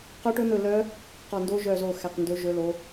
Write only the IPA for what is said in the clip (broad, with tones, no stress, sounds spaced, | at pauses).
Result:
q œ˦˥ ʈ ɵ˦˥ n̪ ɵ˦˨ l œ˦˥ | q ɔ˦˨ n d o˦˥ ʒ œ˦˨ z o˦˨ x æ˦˨ q n d ɵ˦˥ ʒ ɵ˦˥ l o˦˥